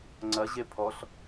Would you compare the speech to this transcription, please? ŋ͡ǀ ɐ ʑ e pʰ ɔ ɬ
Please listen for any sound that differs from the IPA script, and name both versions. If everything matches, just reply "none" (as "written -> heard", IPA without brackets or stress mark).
none